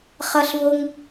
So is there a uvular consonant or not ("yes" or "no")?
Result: yes